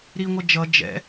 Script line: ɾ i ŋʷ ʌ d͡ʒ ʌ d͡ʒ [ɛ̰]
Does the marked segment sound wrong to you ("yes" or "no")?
no